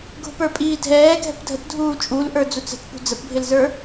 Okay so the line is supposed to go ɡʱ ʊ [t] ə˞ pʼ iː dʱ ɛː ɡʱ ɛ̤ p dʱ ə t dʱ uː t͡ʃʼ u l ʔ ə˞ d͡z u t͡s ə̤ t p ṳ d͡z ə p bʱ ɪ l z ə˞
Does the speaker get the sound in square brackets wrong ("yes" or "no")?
yes